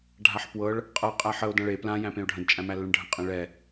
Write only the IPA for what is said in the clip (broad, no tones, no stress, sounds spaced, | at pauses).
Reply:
ɖʱ a ħ p w ɤ ɭ | qʼ ɤ qʼ æ ħ ə o̯ d ã ɭ e p l ã j æ̃ p ẽ o̯ ɖʱ ə̃ d t͡ʃʼ æ̃ m æ lː ə̃ ɳ ɖʱ ə̃ qʼ ẽ ɭ ɛ